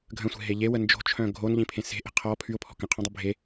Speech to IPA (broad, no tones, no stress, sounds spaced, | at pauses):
ɡʱ ə̃ sʷ e̤ ɦ e ʎ e w ə n d͡ʒ o̤ t͡ʃʰ œ̃ ɡʱ o n ʎ ĩ pʰ ẽ s e̤ ʔ e̤ qʰ ɔ pʰ y ʊ̯ pʰ ɔ̤ k ə̃ qʰ õ dˤ e bʱ e